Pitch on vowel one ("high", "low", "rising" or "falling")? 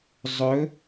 rising